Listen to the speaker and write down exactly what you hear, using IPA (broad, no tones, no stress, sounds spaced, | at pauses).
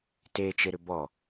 t e t͡ʃ e ɾ ʏ b ɔ